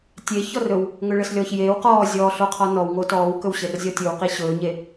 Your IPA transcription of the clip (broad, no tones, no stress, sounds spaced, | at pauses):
tʲ e ç ɔ r ɵ w | ŋ ɵ ɭ ə s lʲ ɔː ç j eː w q ɔː zʲ ɔː ɬ o qʰ ɔ n ɔ w ŋ o t ɔː w k ɵ w ɕ ɘ r zʲ ɔ tʲ ɵ w q i ɕ ɵː ɲ e